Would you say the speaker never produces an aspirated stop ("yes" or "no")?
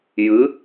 yes